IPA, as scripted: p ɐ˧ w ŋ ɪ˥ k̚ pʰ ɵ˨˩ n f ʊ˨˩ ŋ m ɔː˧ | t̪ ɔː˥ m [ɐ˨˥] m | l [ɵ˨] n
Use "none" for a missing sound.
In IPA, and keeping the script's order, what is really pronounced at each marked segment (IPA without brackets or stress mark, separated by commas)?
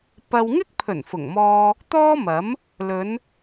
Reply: ɐ˨˥, ɵ˨˧